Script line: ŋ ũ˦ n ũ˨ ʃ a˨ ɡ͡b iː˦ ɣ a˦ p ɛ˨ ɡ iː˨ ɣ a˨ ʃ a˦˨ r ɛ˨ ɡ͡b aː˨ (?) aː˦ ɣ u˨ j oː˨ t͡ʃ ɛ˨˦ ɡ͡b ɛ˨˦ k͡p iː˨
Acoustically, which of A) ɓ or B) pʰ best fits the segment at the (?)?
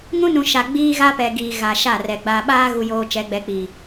A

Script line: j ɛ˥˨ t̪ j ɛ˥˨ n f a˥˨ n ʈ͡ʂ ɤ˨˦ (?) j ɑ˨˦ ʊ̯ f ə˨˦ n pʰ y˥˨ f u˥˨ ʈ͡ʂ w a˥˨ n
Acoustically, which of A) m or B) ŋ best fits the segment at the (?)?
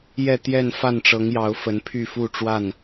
B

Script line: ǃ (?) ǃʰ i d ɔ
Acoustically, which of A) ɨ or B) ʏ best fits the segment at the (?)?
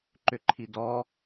B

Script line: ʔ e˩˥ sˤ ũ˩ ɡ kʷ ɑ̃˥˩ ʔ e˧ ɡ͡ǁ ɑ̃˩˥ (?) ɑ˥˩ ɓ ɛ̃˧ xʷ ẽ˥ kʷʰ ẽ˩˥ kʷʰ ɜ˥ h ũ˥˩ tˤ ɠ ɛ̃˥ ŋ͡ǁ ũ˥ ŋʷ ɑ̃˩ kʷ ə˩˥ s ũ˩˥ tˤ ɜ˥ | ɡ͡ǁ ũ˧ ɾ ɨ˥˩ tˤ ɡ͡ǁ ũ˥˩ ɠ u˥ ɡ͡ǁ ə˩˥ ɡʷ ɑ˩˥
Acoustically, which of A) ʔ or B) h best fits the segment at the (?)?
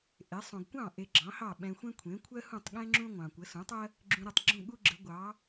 B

